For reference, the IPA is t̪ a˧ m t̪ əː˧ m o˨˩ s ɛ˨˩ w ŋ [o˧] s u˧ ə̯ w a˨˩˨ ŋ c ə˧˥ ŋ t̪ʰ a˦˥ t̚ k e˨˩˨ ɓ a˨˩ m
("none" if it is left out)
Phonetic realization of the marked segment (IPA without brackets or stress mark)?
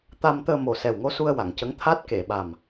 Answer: o˧